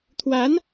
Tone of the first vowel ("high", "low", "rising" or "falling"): rising